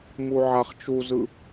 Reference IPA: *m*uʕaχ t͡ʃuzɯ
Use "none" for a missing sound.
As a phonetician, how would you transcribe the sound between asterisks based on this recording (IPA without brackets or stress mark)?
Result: m